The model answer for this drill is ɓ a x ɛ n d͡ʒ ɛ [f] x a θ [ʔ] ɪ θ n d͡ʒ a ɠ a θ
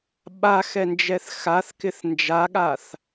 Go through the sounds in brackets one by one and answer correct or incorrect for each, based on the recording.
incorrect, incorrect

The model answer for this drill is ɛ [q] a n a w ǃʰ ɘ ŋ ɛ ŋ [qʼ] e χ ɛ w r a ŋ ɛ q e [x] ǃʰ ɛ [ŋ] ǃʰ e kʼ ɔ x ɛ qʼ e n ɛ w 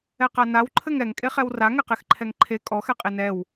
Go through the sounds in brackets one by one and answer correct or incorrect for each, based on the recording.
correct, incorrect, correct, correct

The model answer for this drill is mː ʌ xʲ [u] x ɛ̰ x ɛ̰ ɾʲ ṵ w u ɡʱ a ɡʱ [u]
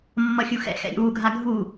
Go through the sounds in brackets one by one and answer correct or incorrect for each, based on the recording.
correct, correct

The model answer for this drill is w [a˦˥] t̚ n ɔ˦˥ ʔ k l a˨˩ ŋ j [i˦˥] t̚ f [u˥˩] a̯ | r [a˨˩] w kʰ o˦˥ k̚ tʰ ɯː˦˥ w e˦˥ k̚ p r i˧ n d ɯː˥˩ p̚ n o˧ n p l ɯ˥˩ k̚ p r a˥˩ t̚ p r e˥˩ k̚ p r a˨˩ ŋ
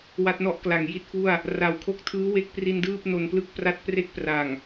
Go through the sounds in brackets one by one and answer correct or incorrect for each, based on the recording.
correct, incorrect, correct, correct

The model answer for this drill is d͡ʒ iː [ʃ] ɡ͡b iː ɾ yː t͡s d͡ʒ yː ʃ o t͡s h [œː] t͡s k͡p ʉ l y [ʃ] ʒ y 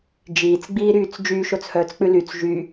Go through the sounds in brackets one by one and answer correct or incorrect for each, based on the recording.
incorrect, correct, incorrect

